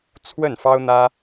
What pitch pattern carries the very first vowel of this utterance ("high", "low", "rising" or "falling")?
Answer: falling